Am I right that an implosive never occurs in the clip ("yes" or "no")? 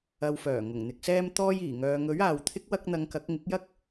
yes